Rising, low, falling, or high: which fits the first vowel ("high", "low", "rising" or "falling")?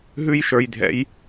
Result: high